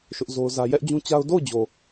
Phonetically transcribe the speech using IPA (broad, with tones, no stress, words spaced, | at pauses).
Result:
ʃʊ˦ʔzo˦ʊ̯zä˦ jɛ˦ʔd͡ʑũ˦t͡ɕa˦ʊ̯ do˦˨ʊ̯d͡ʑo˨